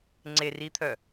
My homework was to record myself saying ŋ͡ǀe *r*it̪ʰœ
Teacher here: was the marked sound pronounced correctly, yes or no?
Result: yes